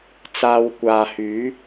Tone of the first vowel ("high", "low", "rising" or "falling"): high